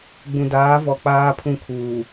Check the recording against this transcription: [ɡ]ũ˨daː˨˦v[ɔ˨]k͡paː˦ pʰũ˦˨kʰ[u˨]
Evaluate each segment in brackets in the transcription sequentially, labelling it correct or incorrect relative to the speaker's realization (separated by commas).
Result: incorrect, correct, incorrect